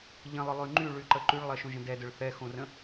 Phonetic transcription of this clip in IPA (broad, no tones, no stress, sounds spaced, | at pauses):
ʎ ə̃ lˠ ʊ lˠ y ŋ͡ǃ y ɭ y ǃ ə ǃ y ɭ lˠ ɜ ʃ õ ʒ ə̃ d ɛ d ʊ ɭ θ ɛ x õ r ə̃